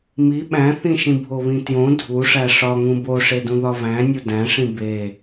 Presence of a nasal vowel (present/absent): present